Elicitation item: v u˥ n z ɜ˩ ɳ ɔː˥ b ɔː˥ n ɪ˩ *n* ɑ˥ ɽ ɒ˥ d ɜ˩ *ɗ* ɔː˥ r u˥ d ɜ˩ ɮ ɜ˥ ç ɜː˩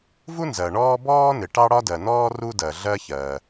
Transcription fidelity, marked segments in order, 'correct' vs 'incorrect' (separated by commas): incorrect, incorrect